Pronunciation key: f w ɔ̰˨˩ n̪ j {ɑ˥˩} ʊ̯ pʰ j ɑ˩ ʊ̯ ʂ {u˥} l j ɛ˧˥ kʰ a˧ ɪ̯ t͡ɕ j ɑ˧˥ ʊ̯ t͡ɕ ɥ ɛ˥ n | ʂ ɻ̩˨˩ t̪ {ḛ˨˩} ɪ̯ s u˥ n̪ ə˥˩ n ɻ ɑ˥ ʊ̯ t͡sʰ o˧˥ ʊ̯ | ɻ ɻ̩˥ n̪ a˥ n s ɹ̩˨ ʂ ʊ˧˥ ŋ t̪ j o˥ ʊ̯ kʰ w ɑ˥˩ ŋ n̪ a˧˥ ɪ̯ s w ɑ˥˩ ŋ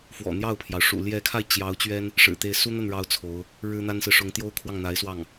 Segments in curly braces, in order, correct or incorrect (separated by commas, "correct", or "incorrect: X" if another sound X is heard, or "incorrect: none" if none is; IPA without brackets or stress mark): correct, incorrect: ṵ˨˩, incorrect: e˥˩